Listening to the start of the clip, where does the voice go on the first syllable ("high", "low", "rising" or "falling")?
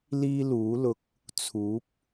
high